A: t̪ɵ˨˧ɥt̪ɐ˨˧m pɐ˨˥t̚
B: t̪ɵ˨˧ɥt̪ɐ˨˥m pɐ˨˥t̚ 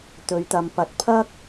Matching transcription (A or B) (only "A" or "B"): A